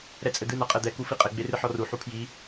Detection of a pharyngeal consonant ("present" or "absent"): present